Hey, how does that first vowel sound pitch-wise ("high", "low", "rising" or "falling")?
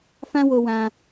high